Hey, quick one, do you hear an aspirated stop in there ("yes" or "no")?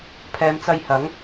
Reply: yes